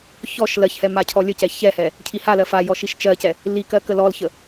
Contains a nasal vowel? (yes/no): no